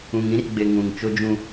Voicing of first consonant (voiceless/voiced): voiced